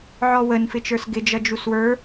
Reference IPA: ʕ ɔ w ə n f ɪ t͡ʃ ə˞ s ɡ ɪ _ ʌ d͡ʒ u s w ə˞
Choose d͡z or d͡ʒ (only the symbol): d͡ʒ